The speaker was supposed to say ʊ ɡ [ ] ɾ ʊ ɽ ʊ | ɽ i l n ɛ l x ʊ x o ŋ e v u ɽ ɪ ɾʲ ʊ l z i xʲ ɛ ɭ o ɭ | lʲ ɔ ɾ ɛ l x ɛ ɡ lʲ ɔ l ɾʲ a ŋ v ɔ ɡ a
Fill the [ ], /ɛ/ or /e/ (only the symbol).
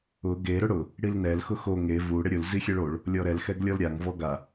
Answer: e